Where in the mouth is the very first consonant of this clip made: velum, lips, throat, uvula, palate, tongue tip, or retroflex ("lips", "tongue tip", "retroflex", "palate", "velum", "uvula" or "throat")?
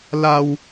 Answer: tongue tip